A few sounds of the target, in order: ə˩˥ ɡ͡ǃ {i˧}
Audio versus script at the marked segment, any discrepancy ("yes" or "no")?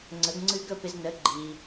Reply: yes